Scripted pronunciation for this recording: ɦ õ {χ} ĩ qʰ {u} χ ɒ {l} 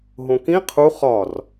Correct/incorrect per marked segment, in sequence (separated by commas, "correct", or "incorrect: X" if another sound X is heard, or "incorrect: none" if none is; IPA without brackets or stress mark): incorrect: k, correct, incorrect: r